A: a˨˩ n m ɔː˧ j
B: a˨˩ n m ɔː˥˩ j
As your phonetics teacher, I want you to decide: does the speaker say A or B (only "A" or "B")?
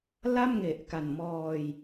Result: A